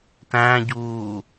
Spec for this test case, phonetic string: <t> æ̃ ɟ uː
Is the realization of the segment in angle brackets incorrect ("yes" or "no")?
no